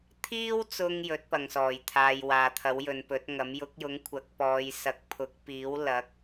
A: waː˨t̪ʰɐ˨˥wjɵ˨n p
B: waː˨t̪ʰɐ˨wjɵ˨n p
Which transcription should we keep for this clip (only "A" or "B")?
A